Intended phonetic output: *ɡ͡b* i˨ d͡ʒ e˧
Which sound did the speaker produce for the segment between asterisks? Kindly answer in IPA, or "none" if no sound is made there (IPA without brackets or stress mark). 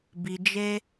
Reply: b